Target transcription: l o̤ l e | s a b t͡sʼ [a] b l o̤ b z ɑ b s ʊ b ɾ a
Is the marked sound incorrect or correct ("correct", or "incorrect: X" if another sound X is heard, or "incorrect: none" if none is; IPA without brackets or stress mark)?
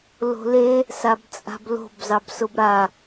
incorrect: a̤